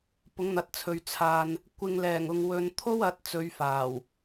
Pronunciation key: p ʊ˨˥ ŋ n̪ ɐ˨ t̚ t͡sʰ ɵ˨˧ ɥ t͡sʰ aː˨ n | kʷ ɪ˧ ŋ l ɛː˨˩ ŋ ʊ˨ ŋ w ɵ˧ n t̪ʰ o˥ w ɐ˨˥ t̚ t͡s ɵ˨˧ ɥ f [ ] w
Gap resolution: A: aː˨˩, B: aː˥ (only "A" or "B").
A